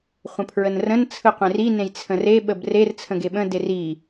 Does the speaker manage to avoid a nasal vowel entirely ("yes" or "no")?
no